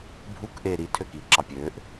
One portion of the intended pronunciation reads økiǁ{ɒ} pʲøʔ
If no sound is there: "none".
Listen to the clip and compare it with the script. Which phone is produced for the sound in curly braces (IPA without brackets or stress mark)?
ɑ